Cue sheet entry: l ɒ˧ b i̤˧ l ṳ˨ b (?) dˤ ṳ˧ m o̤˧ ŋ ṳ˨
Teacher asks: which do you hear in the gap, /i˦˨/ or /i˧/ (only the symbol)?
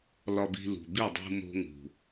i˦˨